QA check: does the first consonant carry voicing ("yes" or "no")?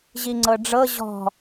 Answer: yes